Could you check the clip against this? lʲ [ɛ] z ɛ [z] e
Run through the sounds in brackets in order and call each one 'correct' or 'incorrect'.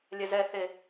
correct, incorrect

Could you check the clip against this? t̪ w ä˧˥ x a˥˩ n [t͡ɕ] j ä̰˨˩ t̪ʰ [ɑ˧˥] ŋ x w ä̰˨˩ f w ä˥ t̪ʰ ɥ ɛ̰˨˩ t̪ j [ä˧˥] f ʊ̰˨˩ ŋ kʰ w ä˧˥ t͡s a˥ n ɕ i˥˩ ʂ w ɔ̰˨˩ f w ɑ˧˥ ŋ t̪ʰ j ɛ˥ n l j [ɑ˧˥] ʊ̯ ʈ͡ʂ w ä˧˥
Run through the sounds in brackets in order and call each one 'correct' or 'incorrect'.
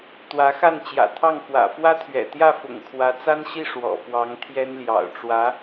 correct, incorrect, incorrect, incorrect

